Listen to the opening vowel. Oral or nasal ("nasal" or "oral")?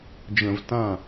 nasal